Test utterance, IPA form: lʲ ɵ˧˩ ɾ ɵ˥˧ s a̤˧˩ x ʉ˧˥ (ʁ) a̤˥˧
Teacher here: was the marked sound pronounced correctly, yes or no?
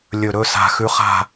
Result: no